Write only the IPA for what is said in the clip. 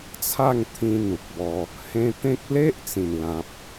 t͡sʰ a˥˧ ŋ t̪ʰ ĩ˧ n̪ u˨ k̚ b ɔ˧ | h ẽ˧ t̪ ẽ˦ k̚ l e˦ ʔ t͡s ĩ˨˩ n l ã˨ p̚

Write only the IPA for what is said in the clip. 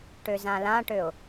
ʈ ø z ã l ã ʈ ø ʊ̯

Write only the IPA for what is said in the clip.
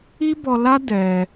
i˦ b ɔ˧ l a˦ d ɛ˧

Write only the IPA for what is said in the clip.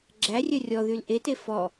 ɡ͡ǁ æ rʲ œ rʲ ɔ ð y l ʔ e t e f ɔ

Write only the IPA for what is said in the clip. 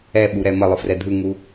ɛ ɓ u ɾ ɛ m ə lˠ ɯ f r ɛ dʱ ɯ ŋ u

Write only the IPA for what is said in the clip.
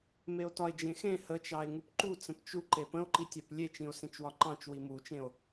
m e o̯ t ɒ e̯ d͡ʒ ẽ x ẽ h ə t͡ʃ ɑ e̯ ŋ u p ǃ u t͡s ə̃ p t͡ʃ u ǃ e p ə̃ o̯ ǃ i tʲ a p lʲ e t͡ʃ ĩ o̯ s ẽ t͡ʃ w ɒ ǃ ɑ̃ t͡ʃ w i m u t͡ʃ ẽ o̯

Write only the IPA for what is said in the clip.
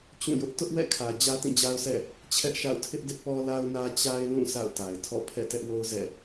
t͡ɕ ũ˦˨ j ʊ˦ ʔ t ʊ˦ ʔ w ɛ̰˦˨ kʰ ä˨ d͡ʑ ä˦ t ĩ˦˨ d͡ʑ a˦ ʊ̯ sʰ ɛ̰˦˨ | t͡ɕʰ ɛ˦ ʔ ʃ a̰˦˨ ʊ̯ tʰ ɪ˦ ʔ d ɪ˦ ʔ p ɔ˦ l a˦ ʊ̯ n ä˦ t͡ɕ a˦ ɪ̯ l ũ˦˨ s a̰˦˨ ʊ̯ t a˨ ɪ̯ tʰ ɔ̰˦˨ pʰ ɛ̰˦˨ t ɛ˦ ʔ w o˦ ʊ̯ z ɛ̰˦˨

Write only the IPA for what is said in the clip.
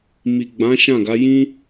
m i˨ ɡ͡b ã˨˦ ʃ ã˦˨ ɡ a˨˦ j ĩ˦

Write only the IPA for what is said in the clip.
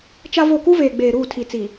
t͡ʃ a˦ v o˦˨ k u˦ v eː˨ ɡ͡b eː˨ ɾ uː˦˨ tʰ i˨ t͡s i˨

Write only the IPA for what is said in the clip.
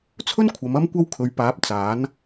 t͡sʰ ɵ˥ n kʷʰ ɐ˨˧ m ɐ˥ m kʷ ɐ˥ w kʰ ɵ˨˧ ɥ p aː˨˥ p̚ t͡s aː˨˥ n

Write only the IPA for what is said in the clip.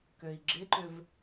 k ø i̯ ɡ͡ǁ ɪ ǃ ʏ v

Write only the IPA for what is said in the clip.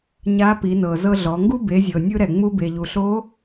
ɲ a˧˥ p i˩˧ n ɤ˩ z ɤ˧ ɮ ɔ˩˧ ŋ ɡ u˥ b e˩˧ zʲ ɤ˩ nʲ ɯ˧ ɾ ɛ˩ ŋ͡m u˧ b e˩ ʎ u˩ ɬ o˧˥

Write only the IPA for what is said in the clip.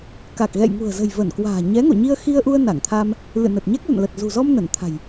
k a˨˩ k̚ ɣ ɛ̰˧˨ j ŋ ṳ˨˩ ə̯ z ə̤˨˩ j v ə˧˩ n k w a̤ː˨˩ ɲ ɛ˨˦ ŋ o̰˧˨ ɲ i˧ ə̯ x i˧ ə̯ ʔ u˧ ə̯ n a˧˩ ŋ t̪ʰ a˧ m | l ɨ̰˧˨ n ə˨˩ t̚ ɲ ɛ˦˥ k̚ l ə̰˧˨ n l ə˨˩ t̚ z ṳ˨˩ z ɔ˧ m n ə˧˩ n t̪ʰ a̤˨˩ j

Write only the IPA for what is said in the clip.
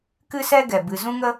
k ɨ˦ s ɛ˦ ɡ ɛ˨ b ɨ˨ z ũ˦ ŋ ə˦

